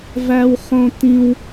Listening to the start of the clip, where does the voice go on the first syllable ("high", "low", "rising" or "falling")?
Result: high